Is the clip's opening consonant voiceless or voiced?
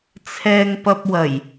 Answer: voiceless